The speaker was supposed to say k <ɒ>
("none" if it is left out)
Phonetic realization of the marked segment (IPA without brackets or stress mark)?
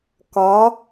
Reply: ɒ